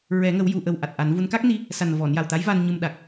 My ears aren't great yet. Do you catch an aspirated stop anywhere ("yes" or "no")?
no